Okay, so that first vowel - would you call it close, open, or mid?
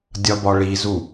open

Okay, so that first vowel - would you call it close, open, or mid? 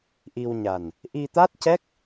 close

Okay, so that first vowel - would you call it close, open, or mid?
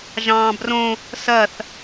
open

